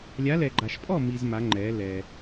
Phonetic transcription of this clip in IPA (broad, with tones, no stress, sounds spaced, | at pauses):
lʲ a˨˦ l ɛ˨ ɡ͡ǃ a˨ ʃ pʼ ɔ˥˨ m i˨ z m a˨˦ ŋ͡ǃ ɛː˨˦ l ɛ˨